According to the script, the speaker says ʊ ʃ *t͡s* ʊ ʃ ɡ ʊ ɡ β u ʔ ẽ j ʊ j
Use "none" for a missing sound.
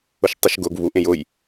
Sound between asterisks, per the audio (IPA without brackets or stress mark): tˤ